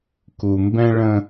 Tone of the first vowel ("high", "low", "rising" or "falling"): low